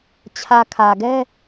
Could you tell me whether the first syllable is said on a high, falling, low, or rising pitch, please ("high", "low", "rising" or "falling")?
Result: low